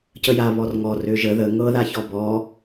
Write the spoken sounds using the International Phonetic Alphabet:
c ə j a β ɔ r ŋ ɔ r ø ʒ ə ð ə ŋ ɤ ð a ç ɔ b ɔ

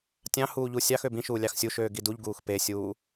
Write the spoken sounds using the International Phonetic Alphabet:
tʲ ɑ̃ h uː ʎ u sʲ ɑ x ø b ĩ ʃ uː lʲ ɑ x sʲ u ʃ øː ɡ i d u ʎ ɡ uː x p e sʲ uː

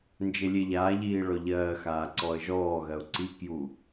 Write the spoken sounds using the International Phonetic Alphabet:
n d͡ʒ e lʲ e ʎ aː ʎ iː ɭ ɔ ʎ ɜː x aː ǀ ɔ ə̯ ʒ ɔː ɣ ɜ ʊ̯ ǀ i k j u

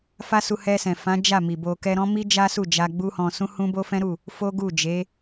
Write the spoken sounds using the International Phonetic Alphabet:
f a˦ s u˧ h ɛ˧ s ɛ̃˨ f ã˨˦ d͡ʒ a˦˨ m i˨ b o˧ k ɛ˧ ɾ ɔ̃˦ m i˦ d͡ʒ a˦ s u˦˨ d͡ʒ a˧ ɡ͡b u˦ h ɔ̃˧ s ũ˦ h ũ˦ b o˦ f ɛ̃˦ ɾ u˦˨ | f o˦ ɡ u˦˨ d͡ʒ e˨˦

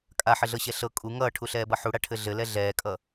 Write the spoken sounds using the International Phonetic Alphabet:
kʼ a ħ ɘ ɮ ɤ ɕ ɛ ɬ ɤ kʼ u ŋ ʌː ʈʰ u ɬ ɛː b ʌ ħ u ɽ a ʈʰ ɘ ɮ ɘ l ɛ ɮ ɛː kʼ ʌ

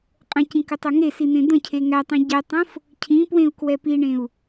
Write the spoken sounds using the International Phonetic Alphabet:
qʼ ə̃ c ĩ k ə tˤ o ŋ e s i n̪ ẽ d̪ ə̃ cʰ e ŋ æ tˤ ĩ ɟ ɛ tˤ õ f | cʰ ĩ p w ẽ u̯ k w ɛ p i ɳ ẽ u̯

